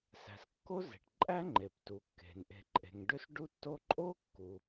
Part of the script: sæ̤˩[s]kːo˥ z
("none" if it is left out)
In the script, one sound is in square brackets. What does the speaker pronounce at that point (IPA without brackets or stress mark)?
s